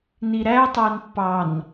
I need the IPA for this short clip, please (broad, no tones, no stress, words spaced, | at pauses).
niɾæ tˤænpːɑn